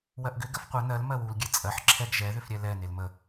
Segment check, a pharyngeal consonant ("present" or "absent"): present